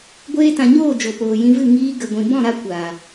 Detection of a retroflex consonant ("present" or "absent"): absent